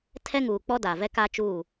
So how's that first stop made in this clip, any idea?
aspirated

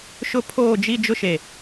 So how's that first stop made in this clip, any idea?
aspirated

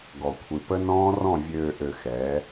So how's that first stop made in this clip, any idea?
plain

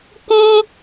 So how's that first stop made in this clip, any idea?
plain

